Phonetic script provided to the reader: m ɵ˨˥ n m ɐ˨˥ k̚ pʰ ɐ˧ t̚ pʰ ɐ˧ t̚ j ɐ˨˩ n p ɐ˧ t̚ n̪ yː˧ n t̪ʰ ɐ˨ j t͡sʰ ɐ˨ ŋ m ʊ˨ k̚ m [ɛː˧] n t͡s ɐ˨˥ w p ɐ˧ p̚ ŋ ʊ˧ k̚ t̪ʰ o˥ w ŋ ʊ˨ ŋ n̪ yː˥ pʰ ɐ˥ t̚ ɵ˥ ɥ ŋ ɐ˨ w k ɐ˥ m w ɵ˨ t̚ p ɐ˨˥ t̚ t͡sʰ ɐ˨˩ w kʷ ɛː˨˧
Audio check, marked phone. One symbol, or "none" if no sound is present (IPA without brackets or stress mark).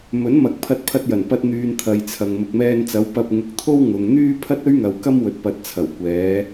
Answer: ɛː˧